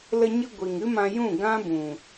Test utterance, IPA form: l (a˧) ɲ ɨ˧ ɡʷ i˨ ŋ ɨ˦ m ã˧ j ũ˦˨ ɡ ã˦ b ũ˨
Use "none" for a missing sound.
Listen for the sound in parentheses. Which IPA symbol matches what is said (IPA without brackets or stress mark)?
ə˧